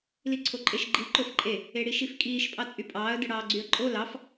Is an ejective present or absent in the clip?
present